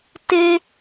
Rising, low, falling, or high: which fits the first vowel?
high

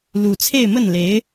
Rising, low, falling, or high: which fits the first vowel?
low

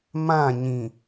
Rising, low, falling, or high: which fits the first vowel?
falling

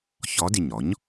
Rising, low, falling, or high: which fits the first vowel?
rising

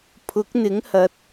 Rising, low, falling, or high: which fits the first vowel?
rising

